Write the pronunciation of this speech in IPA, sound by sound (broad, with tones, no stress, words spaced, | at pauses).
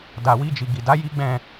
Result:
da˨wi˧d͡ʒi˨ ɡi˨da˨˦ ji˦ɡ͡bɛ̃˦˨